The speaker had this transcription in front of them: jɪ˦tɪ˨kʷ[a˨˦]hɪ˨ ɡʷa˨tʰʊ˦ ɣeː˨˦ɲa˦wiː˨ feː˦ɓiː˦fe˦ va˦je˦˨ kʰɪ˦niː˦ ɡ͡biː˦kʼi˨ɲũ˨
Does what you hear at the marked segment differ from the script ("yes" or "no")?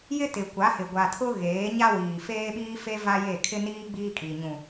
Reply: no